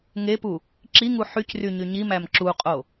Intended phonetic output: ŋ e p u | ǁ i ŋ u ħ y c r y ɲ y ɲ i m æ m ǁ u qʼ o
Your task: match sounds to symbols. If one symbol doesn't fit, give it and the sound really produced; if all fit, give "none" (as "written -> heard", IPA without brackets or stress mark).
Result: none